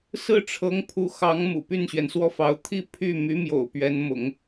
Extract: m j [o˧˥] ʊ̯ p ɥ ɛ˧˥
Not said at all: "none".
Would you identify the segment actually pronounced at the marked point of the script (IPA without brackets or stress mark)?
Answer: o̰˨˩